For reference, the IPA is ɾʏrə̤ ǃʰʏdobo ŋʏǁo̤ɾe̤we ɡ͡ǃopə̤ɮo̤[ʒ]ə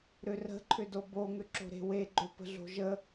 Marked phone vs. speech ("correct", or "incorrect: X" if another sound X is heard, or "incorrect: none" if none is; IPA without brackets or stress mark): correct